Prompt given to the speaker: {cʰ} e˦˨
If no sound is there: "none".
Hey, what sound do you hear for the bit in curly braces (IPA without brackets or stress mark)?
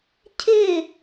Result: cʰ